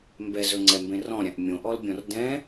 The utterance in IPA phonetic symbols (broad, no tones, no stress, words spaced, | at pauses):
mbɛzɵŋ͡ǀɛmbẽ rɔ̃ɾʲãʔ mʲõʔɔlbʲɔ̃r dɛ̃